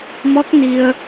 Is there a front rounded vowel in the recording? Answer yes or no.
no